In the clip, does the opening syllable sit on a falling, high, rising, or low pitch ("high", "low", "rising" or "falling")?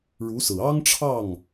rising